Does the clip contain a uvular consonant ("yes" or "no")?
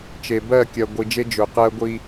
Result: yes